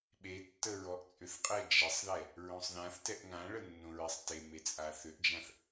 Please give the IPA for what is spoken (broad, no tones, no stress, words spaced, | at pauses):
ɓetːə ɹɔʔt͡sʼʏθqʼɛ d͡ʒɛsˤðɛ | ɹõsˤðãθtɛʔ ŋãɭə nːõɹɛsˤteme t͡sʼaθʏʔd͡ʒãθ